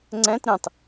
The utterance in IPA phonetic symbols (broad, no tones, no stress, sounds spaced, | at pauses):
ŋ͡ǀ ɛ̃ t ɾ ĩ tˤ